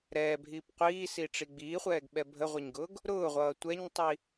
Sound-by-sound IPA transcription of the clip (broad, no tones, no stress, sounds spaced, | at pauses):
ɾ ɛː bʱ iː p qʷ iː s i ʈ͡ʂ i ɡ͡b iː χʷ ɛː ɡ ɓ ɛ bʱ ə ʁʷ ə ɲ ɡ ʊː ɡ | ɾ ʊː ʁʷ ʌː tʷ ɛ ɲ tˤ i